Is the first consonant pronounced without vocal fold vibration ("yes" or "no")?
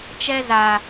yes